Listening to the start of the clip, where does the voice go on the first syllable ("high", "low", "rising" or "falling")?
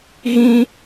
high